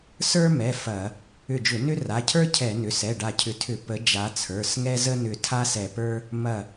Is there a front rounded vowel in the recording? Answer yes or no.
yes